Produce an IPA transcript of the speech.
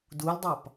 duldˤɑp

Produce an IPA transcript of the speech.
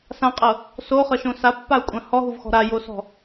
sãqʼɤ | soχɤʃõ sapːau̯kʷʼã hɔɦuvxɔ̤ ɾajosɔ̤

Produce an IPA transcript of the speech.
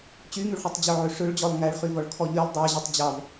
t͡ɕyŋyɭχytˤ d͡ʑœʕøʂøɭd͡ʑɔlˠ ŋæɭχyvɔɭ kʰɔʎylˠ dˤæ ʑœtˤd͡ʑɑv

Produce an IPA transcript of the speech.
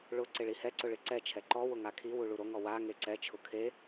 ɭʊ ǀɪɭihɛǀʊ ɭɪǀɛt͡ʃʰɛ ǃɔwʊ ŋakʰiwu ɭuɾoŋɔ wa ŋeǀɛt͡ʃʰʊ kʰe

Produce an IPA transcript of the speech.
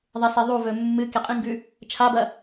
ðˤeseðˤuvɵ mːɨ keqʼĩŋɡʉ | t͡ʃʰabɐ

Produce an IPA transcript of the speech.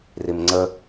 rimŋ͡ǀə

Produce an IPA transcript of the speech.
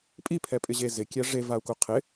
pʼipʰɛpʼɪʑe zɪkʲɛ ʐevau̯ku qʰɪ

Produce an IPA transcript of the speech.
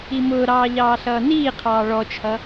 imʊːɾɑː ʎɑːɬʌːniːqʰɑː ɭɔt͡ʃʰʌ

